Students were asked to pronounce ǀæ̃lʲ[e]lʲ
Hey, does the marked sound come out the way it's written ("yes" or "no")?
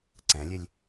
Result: yes